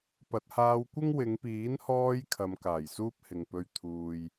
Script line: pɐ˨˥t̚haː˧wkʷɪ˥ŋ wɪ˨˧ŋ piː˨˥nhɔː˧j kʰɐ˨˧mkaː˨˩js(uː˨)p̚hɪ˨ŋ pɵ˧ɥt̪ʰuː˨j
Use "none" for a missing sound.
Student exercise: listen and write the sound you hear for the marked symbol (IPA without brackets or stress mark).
uː˥